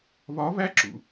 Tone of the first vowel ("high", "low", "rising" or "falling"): rising